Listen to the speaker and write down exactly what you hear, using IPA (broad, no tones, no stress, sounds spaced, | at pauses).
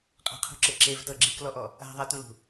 qʼ a̤ qʰ ṳ ǁ e ǁ e v t ɤ ɡ͡ǁ i k l ɔ ʔ ɔ | a̤ ðˤ a t ũ l ṳ